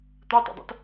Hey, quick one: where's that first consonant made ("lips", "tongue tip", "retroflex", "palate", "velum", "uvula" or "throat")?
tongue tip